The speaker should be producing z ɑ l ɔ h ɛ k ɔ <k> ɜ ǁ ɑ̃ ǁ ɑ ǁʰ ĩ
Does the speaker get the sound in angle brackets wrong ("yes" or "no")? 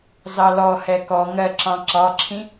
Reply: yes